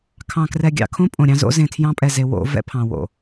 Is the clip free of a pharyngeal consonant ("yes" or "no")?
yes